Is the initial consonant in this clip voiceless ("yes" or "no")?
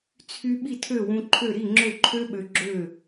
yes